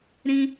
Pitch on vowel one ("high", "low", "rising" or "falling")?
high